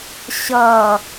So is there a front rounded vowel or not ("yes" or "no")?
no